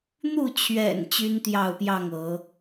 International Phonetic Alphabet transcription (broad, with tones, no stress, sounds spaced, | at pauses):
n̪ u˥˨ t͡ɕʰ ɥ ɛ̰˨˩ n t͡ɕ y˦ n t̪ j ɑ˥˨ ʊ̯ p j ɑ˥˨ ŋ ɤ˨˦